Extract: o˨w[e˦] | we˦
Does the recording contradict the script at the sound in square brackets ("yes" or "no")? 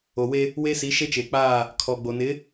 no